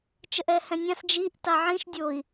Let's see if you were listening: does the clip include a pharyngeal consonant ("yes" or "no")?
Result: yes